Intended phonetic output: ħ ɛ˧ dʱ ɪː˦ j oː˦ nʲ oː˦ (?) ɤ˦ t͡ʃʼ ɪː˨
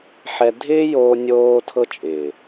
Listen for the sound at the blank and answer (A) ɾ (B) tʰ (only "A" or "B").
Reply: B